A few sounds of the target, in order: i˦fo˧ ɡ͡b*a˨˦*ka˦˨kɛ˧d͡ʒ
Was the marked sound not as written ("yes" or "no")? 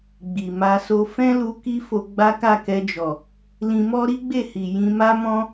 yes